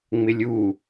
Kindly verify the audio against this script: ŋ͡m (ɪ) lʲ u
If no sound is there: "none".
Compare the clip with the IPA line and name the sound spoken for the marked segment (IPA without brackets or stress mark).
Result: ɪ